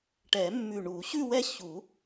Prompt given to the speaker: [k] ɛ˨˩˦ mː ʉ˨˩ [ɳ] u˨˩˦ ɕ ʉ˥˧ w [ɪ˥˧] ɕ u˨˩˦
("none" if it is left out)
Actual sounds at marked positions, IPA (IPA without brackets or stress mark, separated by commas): ʈ, ɳ, ɛ˥˧